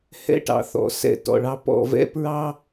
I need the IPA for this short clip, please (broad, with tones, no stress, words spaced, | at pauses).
hɛ̰˧ʈɑ̰˨θɔ̰˨ sɛ̰˧ tɔ̰˨ɭɑ˧ pɔ̰˦˨vɛ̰˦ pɹɑ˦